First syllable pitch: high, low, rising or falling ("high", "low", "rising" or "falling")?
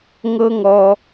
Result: high